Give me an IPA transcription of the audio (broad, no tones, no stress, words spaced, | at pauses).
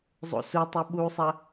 zˤo̰sutˤʉ ɓusˤɐ